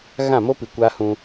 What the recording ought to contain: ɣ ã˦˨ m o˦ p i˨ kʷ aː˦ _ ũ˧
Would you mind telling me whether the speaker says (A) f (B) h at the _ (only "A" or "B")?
B